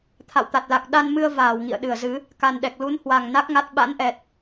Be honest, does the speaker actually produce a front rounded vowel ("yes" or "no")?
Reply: no